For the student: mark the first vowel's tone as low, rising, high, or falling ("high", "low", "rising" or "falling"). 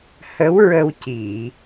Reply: rising